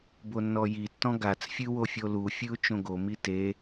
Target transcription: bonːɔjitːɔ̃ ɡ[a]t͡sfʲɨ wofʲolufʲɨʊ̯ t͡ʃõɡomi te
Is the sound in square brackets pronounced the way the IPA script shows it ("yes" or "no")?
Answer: yes